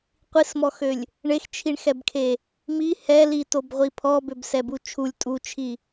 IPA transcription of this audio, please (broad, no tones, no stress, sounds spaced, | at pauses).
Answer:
qʷ i s m ɔ x ø lʲ | ɳ e x t͡ʃʰ i ɳ x ɛ b kʰ e | m i h ɛ l i t o b ʁʷ i pʰ ɔ b ø b s ɛ b u t͡ʃʰ u lʲ tʼ u t͡ʃʰ i